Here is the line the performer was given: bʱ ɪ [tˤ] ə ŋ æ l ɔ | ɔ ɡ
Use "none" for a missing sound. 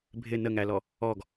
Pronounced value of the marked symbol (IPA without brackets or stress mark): n